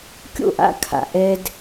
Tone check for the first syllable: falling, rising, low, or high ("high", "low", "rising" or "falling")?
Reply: falling